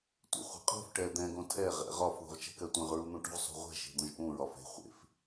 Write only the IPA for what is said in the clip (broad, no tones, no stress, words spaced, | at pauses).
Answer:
tʷḛχʷɛ̤qʼo̤f ʈɛd̪ɛ̃ ɡõtʰɛ ʁɛ̰ʁɒf ðṳʁt͡ʃɛ̤kɜtʷẽʁ ɹun̪ũʈṳʁ sˤṳʁʷɛ̤ ʃe̤d̪õʒʔũ ɹɒfe̤ χʷḛf